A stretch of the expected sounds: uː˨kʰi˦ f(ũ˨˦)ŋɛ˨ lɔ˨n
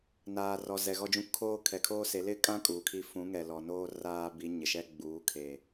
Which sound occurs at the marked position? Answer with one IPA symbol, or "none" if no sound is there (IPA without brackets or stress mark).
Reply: ũ˨˦